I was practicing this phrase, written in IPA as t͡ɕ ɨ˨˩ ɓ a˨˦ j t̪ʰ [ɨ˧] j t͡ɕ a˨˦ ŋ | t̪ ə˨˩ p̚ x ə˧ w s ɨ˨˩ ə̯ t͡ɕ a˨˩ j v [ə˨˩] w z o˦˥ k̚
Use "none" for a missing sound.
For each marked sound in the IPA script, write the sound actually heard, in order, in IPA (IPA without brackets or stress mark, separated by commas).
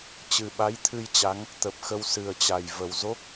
ɨ˧, ə˨˩